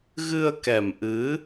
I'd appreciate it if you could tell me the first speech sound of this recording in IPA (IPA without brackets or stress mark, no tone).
ɣ